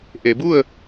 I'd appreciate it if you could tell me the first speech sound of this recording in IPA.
ʔ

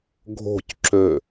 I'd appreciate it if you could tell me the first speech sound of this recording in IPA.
ɡʱ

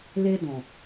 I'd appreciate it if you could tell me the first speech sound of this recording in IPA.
l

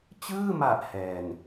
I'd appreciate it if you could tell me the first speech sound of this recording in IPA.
t͡ɕ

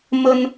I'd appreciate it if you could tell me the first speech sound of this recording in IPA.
m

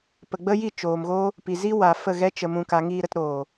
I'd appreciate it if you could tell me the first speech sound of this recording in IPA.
p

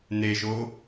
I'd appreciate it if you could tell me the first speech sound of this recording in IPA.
n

